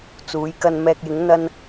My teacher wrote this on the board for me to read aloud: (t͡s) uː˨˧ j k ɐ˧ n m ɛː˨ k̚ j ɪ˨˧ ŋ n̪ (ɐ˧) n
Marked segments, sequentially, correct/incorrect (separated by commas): correct, correct